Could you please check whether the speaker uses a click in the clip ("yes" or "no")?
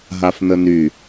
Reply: no